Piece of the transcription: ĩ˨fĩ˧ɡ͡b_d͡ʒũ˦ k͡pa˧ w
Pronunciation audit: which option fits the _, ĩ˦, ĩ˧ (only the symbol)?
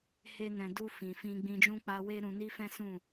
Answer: ĩ˧